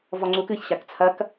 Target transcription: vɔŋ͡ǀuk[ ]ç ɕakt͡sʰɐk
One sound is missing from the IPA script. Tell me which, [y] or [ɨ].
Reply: ɨ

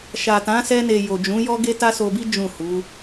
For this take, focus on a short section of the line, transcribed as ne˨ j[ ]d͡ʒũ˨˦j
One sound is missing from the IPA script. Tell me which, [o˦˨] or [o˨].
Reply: o˨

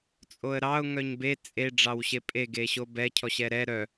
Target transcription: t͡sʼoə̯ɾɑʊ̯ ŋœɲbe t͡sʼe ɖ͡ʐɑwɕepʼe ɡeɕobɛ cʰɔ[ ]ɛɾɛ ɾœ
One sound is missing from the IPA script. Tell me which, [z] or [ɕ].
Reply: ɕ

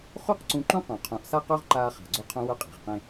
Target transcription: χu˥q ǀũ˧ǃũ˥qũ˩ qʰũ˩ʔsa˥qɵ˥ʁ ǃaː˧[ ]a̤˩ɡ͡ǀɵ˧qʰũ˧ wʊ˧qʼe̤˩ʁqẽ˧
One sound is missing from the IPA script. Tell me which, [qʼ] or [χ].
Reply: χ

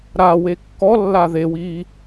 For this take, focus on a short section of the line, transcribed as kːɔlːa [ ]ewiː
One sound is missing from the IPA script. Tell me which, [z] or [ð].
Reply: ð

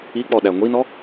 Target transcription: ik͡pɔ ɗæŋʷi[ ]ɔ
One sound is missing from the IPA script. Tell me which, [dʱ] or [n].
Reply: n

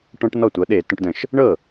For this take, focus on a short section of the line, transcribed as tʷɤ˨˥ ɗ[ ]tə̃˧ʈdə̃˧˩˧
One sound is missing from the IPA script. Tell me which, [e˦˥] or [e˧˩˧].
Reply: e˧˩˧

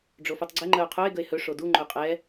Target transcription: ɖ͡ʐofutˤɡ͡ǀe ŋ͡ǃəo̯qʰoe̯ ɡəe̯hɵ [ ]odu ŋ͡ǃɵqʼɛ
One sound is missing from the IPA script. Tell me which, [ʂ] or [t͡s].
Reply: ʂ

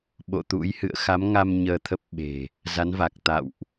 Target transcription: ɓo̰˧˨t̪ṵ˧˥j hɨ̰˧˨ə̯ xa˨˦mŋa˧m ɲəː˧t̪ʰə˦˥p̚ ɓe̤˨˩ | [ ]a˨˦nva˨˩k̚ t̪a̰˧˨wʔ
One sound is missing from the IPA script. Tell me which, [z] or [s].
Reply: z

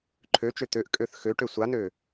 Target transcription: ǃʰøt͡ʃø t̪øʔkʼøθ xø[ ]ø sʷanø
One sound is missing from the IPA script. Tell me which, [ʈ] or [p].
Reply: ʈ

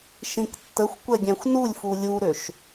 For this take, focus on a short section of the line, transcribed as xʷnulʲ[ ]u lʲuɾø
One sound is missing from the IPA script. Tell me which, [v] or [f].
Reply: f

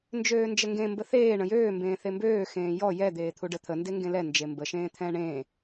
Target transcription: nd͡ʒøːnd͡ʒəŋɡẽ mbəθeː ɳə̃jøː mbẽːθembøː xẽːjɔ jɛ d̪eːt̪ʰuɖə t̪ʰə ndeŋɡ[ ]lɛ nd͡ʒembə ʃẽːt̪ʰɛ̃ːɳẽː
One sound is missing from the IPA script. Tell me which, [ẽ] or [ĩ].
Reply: ẽ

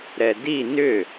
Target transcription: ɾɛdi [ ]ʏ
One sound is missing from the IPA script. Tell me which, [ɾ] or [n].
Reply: n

